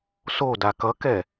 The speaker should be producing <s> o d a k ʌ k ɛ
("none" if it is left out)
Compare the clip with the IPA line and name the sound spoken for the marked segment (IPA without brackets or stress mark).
s